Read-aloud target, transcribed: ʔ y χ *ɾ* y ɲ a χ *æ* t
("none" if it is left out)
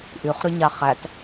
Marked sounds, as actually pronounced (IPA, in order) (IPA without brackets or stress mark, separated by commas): ɾ, æ